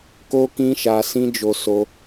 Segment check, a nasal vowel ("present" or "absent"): present